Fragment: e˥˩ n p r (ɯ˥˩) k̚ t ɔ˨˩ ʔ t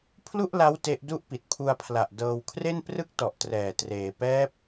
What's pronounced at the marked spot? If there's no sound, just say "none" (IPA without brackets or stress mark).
ɯ˥˩